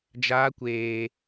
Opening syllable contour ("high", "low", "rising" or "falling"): high